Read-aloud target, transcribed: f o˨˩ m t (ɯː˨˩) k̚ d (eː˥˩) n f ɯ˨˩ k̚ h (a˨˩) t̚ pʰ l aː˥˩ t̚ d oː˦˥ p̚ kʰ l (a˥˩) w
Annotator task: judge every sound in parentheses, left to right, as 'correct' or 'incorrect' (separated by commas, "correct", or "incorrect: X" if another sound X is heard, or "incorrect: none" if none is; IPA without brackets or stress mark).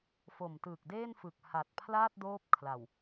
correct, correct, correct, incorrect: a˨˩